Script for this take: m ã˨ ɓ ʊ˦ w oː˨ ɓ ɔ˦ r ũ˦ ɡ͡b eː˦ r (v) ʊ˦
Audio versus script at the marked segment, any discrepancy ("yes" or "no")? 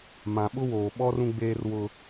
yes